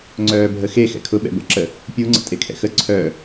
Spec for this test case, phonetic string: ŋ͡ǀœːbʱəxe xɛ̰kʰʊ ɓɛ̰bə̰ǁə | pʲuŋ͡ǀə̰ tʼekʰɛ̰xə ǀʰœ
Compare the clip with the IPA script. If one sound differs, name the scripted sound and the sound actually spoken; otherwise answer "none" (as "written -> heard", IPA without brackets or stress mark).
none